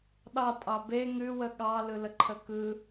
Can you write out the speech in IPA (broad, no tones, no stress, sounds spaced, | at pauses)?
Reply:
ɗ ɑ tʼ ɑ b e ŋ ʉ w ə ɠ ɑ l ɯ l ə ǃʰ ə k ɯ